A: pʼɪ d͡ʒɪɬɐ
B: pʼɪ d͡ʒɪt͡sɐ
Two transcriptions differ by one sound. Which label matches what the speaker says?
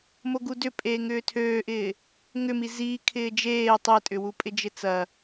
B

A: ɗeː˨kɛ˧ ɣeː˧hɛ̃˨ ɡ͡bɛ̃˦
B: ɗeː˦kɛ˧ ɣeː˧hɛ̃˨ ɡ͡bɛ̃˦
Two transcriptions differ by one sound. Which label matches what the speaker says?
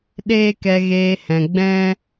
B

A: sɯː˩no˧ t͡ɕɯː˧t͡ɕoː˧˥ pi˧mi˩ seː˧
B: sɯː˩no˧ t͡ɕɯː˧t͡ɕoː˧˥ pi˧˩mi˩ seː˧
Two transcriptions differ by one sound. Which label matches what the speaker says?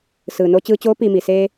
A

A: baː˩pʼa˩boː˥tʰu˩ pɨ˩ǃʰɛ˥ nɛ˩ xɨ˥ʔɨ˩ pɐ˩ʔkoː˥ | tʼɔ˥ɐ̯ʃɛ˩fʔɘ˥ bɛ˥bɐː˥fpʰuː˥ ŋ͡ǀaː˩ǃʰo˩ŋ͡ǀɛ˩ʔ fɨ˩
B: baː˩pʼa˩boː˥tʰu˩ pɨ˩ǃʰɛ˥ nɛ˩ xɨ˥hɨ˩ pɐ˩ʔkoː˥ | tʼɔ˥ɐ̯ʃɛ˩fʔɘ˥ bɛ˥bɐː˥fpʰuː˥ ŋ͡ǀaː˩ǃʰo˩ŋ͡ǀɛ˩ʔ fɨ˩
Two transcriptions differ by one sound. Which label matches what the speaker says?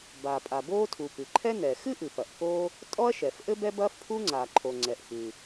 A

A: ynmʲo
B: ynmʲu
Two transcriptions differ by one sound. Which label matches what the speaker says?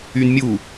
B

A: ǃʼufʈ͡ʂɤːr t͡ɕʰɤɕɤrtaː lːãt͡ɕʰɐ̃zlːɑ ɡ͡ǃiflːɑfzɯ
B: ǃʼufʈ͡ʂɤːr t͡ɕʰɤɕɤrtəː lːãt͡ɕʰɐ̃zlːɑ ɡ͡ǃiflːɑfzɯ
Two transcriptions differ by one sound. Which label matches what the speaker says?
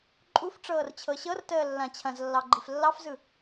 B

